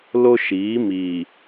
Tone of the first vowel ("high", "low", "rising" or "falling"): high